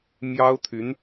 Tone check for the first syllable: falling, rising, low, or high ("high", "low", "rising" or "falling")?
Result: high